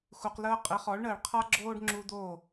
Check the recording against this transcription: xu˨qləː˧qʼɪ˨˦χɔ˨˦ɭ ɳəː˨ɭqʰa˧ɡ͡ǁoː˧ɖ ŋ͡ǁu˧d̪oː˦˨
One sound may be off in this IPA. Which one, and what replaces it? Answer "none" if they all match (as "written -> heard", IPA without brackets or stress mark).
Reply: none